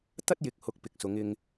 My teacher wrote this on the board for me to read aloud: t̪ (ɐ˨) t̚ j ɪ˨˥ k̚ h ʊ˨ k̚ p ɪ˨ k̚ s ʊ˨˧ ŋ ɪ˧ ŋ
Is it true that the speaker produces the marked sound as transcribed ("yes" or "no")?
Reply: no